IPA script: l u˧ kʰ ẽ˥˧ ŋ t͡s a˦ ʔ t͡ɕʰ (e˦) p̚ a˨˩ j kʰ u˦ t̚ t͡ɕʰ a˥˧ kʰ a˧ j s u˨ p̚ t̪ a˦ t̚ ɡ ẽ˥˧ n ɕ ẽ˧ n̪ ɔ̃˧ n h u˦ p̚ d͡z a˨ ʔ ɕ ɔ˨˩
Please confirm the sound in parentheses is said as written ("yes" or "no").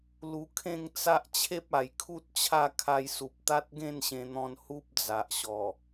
yes